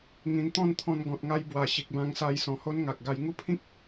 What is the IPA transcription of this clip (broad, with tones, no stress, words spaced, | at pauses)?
ŋĩ˨˩nt̪ɔ̃˥˧n t̪ʰɔ̃˧n ɡɔ̃˨t̚ŋa˧jbwa˨˩ ɕi˨k̚bã˧ŋsa˧j sɔ̃˨˩ho˦nŋa˨k̚ɡa˧j ŋu˥˧pʰĩ˦k̚